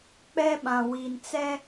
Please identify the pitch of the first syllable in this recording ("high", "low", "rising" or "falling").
high